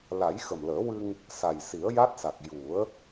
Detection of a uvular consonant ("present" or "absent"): absent